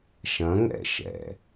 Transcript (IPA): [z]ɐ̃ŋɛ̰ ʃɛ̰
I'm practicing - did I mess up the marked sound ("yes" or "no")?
yes